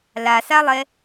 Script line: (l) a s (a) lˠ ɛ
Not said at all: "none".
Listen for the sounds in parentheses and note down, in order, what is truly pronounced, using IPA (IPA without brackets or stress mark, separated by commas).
l, a